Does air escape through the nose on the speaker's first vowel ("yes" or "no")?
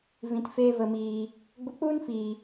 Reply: yes